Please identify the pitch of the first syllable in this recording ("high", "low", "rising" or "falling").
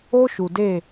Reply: high